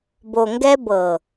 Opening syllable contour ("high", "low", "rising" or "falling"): low